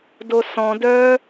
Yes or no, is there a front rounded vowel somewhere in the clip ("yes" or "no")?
yes